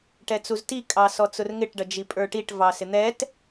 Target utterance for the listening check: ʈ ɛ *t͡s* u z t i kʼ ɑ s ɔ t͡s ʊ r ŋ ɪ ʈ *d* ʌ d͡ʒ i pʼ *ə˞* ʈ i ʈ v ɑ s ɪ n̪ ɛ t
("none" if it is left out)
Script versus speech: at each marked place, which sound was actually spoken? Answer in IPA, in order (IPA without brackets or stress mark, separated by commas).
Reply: t͡s, ɖ, ə˞